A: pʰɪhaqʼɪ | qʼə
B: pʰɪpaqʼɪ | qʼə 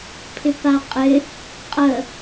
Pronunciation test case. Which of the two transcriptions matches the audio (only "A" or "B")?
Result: B